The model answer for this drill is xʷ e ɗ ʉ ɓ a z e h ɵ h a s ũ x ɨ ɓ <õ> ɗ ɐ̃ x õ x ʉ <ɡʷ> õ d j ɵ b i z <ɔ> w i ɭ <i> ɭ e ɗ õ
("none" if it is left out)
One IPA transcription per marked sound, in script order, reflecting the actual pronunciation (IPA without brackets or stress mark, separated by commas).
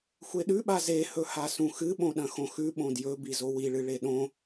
õ, ɓ, o, ɨ